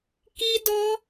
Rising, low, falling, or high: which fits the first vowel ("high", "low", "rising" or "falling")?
high